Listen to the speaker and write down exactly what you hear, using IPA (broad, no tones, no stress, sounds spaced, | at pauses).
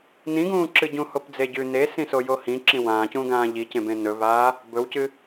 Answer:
n ĩ ɡ ũː ǁ ɨ ɟ ũ h o p d͡z e ɟ ʉ n e s ĩ s o j o h ĩ ǁ ĩ w ãː c ũː ɡ ãː ʎ i c ẽ b ẽ n ɵ v aː | b ɵ w c ɨ